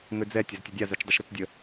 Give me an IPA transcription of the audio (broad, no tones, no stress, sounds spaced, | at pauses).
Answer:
ŋ ø d͡z ɛ tʲ ɐ z tʲ ʊ dʲ a z œ t͡ʃ dˤ ɪ ʃ ɾ ɪ t͡s dʲ ə